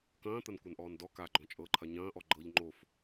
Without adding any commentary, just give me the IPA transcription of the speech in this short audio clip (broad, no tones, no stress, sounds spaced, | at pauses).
k ɐ̃ː t̪ ɐ n kʷ a n ʔ ɔː n d ɔ k a ɡ͡ǃ ɔ̃ t͡ʃʼ ɤ ǃʰ ɐ ɲ ɐ̃ː ʔ ɔ ɡ͡ǃ ɤ ʎ ŋ͡ǃ o f